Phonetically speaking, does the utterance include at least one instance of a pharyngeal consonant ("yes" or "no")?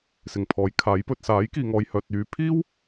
no